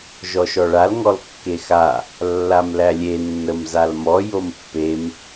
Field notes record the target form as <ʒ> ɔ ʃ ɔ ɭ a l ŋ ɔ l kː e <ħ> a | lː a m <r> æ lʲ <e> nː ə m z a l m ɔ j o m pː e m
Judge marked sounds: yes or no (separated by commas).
yes, no, no, yes